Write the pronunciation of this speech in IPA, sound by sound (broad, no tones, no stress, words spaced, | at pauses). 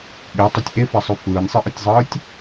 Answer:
ɠetˤɛtʲ ʔefasˤø fɯːnʲsˤɯʔɯtʲzˤɯːtʲ